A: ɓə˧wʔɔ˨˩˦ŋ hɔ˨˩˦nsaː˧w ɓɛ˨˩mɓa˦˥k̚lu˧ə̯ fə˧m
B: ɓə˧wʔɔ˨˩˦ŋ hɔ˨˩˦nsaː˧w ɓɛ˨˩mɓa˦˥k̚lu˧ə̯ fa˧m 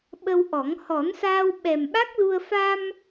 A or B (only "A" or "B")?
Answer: B